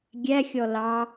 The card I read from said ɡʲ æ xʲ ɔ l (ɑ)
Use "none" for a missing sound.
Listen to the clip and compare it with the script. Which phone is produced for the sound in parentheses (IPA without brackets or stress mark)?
ɑ